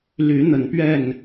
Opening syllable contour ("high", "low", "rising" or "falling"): rising